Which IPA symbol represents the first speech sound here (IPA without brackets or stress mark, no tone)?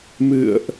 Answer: m